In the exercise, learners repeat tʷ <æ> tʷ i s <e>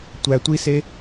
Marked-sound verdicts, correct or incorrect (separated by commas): correct, correct